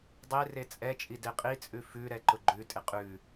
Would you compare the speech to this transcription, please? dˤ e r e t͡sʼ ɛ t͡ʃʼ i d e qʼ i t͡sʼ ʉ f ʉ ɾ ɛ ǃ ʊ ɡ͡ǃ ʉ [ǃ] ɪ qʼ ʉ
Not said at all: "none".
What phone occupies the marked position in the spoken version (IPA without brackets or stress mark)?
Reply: tʼ